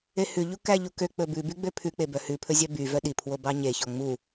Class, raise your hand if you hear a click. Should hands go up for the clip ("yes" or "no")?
no